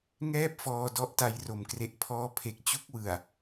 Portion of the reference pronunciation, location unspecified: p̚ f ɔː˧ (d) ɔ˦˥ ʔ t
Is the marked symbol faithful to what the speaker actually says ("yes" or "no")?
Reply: yes